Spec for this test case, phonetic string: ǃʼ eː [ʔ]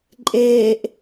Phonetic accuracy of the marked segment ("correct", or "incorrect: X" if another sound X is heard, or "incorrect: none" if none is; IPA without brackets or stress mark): correct